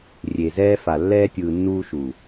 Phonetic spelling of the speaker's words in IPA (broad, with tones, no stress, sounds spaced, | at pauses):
rʲ e˨ z ɛː˧ f a˨ lː ɛː˧ tʲ ɯː˨ nː uː˧ ʃ u˨